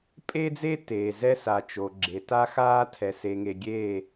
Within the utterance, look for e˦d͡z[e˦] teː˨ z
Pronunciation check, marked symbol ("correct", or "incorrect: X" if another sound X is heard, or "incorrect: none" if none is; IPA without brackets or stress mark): correct